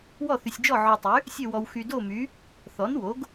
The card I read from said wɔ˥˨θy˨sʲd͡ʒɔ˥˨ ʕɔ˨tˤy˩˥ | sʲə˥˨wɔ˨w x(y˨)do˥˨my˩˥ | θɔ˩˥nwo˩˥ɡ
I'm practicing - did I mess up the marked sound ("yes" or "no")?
no